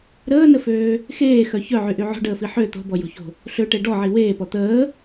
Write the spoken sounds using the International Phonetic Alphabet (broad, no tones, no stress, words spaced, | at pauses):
ɾəːnəføː | xeːxœ çœʕyʔy ʕo̤ɖəːfi ħø t̪o̤bɔjo̤ço̤ | ɬøʈe ɖɔʕi weːpɔ t̪əː